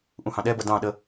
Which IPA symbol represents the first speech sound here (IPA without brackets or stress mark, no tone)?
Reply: ʔ